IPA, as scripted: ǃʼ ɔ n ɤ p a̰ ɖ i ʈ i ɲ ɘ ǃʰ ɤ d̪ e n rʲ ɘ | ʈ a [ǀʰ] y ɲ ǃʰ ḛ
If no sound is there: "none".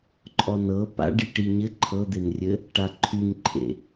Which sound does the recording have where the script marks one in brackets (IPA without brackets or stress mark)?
ǃʰ